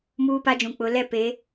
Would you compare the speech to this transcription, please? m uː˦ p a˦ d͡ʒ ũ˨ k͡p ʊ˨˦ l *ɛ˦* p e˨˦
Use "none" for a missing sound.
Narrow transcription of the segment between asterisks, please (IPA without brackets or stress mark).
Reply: ɛ˦